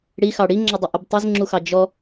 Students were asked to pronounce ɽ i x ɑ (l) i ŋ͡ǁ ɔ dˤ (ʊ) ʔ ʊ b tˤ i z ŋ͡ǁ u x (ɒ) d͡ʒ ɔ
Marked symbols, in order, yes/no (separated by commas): no, yes, no